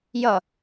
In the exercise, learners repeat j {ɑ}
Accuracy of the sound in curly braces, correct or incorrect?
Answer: incorrect